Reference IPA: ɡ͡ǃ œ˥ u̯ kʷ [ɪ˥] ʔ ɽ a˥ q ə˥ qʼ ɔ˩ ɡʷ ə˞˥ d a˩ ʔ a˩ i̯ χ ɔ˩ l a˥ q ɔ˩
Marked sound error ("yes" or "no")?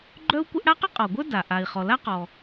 no